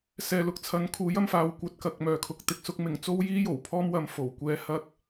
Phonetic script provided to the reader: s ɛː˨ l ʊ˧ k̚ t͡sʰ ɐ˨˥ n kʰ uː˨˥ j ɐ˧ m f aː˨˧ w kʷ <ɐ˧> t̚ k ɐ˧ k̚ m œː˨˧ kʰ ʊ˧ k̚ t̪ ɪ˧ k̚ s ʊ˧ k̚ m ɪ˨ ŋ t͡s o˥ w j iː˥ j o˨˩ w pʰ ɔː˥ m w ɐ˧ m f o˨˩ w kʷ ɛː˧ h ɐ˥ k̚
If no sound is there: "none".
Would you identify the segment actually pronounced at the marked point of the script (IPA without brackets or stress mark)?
ɐ˧